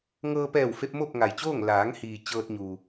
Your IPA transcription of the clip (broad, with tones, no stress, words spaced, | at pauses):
ŋɤː˧pɛː˧˩wfe˧p̚ mo˥˨p̚ŋa˩jt͡ɕoː˥˨ŋ laː˩˧ŋhiː˩ t͡ɕɤː˧t̚ɲuː˩